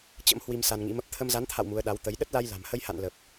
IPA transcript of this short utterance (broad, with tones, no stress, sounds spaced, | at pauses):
t͡ɕ ə̰˧˥ m h w i˧ m s a˧ n ŋ ḭ˧˥ m ə˦˥ p̚ t̪ʰ ə˧ m z a˨˦ n t̪ʰ a̰˧˨ w m u˨˦ ə̯ ɗ a˨˦ w t̪ ə˨˦ j ɗ ə˦˥ t̚ l a˧ j l a̤˨˩ m h ə˧ j h a̰˧˨ n l ə˨˩ p̚